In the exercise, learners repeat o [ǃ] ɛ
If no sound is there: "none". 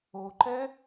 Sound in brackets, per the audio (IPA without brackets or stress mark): ǃ